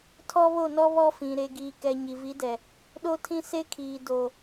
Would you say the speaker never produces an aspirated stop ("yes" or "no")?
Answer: no